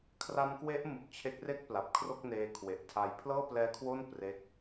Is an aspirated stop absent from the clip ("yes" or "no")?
no